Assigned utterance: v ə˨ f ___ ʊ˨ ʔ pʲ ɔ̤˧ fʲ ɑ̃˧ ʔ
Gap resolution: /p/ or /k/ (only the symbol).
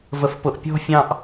p